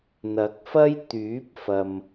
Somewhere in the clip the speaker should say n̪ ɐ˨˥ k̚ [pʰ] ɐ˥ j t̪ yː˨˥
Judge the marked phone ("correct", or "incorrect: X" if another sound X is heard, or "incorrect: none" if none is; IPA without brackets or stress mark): incorrect: f